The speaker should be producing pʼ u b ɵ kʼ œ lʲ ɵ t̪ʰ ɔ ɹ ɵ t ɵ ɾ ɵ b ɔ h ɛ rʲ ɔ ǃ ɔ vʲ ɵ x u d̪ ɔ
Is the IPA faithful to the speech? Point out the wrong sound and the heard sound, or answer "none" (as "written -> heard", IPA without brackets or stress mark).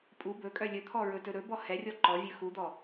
none